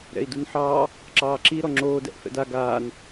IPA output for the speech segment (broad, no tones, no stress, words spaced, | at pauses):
ɾɛ̰i̯dunħɑː | ǁɑːǁi ɾɔŋ͡ǁoːdɛ̰ʔ fɛ̰da ɡaːn